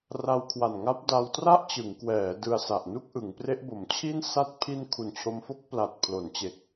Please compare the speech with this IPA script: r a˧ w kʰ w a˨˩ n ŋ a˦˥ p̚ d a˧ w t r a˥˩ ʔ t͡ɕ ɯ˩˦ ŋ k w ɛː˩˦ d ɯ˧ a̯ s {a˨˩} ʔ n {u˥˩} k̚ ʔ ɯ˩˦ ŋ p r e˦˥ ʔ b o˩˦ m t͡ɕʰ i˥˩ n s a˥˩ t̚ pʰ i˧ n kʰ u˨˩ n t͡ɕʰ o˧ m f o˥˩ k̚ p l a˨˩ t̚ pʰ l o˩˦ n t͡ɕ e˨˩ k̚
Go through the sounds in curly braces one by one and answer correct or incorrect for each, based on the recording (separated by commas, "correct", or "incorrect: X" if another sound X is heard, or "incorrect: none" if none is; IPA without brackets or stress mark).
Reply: correct, correct